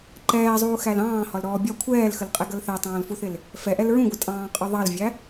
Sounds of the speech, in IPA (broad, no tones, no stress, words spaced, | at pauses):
ǃɛːzˤuːxæl ɑ̃ːhɒlɾɔː bʲɒ kʷʰɛːlxəlqʼɛɡʌl θætˤɑ̃ːlfuθɪl | fɛʔɛl ɹũɡʷɪtʼɑ̃ːqʼɒ ðˤɑlvʲæ